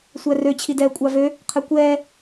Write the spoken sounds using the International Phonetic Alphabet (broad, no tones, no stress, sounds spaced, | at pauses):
sʷ æ r ø t͡ɕʰ i d ɛː kʷʼ ɑ v ø | qʰ ɛ kʷ ɛː